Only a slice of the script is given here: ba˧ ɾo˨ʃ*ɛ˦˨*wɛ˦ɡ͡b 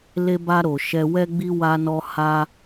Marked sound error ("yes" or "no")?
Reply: yes